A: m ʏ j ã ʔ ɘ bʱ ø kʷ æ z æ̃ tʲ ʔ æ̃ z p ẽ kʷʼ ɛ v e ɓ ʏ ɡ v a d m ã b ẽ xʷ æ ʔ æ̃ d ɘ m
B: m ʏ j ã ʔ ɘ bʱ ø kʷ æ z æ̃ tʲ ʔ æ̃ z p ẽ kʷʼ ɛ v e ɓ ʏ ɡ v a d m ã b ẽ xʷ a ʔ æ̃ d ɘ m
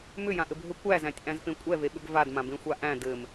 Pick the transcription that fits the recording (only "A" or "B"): B